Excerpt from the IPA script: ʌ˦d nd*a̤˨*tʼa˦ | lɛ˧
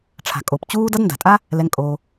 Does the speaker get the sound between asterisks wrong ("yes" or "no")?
no